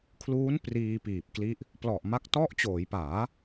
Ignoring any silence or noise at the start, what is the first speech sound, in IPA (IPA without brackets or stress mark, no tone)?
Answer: kʰ